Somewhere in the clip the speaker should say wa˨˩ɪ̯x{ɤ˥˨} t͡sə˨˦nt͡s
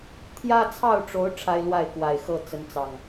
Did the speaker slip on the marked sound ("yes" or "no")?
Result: no